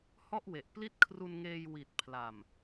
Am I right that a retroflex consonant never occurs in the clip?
yes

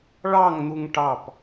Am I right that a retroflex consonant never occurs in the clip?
no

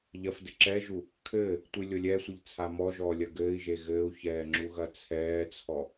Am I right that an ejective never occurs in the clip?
yes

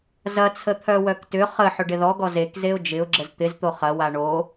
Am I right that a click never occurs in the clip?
no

